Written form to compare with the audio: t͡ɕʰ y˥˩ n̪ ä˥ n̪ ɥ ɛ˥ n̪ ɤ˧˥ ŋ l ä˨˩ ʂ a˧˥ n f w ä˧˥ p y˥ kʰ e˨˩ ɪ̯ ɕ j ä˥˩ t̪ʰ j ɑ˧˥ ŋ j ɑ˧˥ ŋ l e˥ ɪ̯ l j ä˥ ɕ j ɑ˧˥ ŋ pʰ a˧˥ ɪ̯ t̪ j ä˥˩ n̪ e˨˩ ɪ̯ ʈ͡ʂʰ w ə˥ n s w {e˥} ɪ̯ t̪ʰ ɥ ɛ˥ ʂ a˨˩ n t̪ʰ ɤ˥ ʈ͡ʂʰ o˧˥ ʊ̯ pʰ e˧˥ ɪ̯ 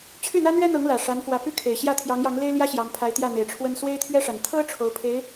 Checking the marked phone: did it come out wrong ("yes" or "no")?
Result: no